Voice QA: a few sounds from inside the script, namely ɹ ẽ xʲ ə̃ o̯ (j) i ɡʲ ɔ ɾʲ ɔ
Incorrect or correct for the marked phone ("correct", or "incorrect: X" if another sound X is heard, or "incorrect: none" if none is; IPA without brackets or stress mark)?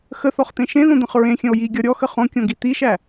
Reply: correct